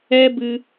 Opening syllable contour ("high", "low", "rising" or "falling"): high